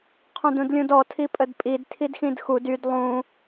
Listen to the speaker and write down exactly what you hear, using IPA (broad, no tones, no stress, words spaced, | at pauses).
qʰũdũdlʲũdɔ tʰipʼədpʼid tʰidxĩdxud yd lˠũ